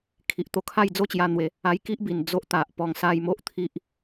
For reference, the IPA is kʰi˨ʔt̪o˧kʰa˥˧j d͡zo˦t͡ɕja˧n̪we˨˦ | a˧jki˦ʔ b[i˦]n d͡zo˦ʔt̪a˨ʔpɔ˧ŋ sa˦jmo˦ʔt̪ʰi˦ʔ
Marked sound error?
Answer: yes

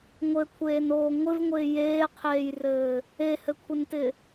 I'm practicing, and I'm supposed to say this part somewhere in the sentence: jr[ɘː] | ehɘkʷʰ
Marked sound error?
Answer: no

